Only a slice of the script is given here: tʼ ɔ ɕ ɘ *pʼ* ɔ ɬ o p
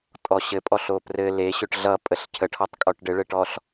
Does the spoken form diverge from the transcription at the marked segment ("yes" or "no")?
no